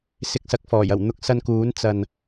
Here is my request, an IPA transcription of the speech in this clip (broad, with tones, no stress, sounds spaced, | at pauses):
s ɪ˧ k̚ s ɐ˨˥ k̚ f ɔː˨˩ j ɐ˨˩ w n̪ ʊ˧ k̚ s ɐ˧ n k uː˨˥ n t͡s ɐ˨ n